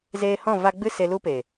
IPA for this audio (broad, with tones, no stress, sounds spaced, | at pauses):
z eː˧ h ɔ̃˦˨ v a˧ ɡ͡b ɨ˦ s e˧ l u˦ p e˨